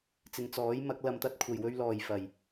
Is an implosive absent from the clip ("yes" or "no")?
yes